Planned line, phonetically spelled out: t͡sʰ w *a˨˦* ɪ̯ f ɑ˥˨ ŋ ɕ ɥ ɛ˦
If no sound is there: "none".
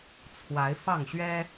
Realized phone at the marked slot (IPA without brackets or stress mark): a˨˦